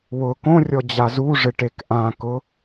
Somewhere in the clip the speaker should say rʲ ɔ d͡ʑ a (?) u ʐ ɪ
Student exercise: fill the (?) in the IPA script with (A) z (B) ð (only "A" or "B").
A